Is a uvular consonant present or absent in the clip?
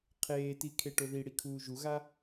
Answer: present